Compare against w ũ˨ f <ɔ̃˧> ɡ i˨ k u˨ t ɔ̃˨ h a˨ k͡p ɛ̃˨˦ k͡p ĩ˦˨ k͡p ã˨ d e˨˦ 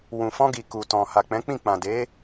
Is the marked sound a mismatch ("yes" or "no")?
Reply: no